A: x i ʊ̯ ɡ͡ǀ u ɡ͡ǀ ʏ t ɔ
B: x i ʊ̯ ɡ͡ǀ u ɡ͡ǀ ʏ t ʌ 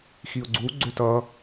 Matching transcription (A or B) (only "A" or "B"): B